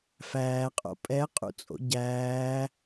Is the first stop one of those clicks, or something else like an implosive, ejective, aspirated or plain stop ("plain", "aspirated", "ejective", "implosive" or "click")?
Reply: ejective